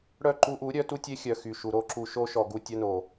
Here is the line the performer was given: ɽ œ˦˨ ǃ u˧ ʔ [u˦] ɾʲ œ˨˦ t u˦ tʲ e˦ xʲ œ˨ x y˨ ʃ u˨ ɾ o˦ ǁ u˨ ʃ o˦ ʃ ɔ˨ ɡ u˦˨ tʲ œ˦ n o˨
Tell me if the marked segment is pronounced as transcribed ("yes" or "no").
no